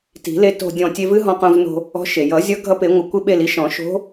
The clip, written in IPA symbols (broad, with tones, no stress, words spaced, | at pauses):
ti̤˨˩˦ le˧to̤˧˩ dʲɔ̃˧˩tʲe˧vɨ˧˥ ɦɔ̃˧qõ˧vno̤˧ | ɔ̤˧˥ʃ e˩jʌ˨˩˦ zʲʌ˧˥ɡʱʌ˧˥pe˨˩˦ŋʷɪ˨˩˦ kʷɪ˧ɓe˧˩li˧ʃ ɔ̃˨˩˦ʃo̤˧˥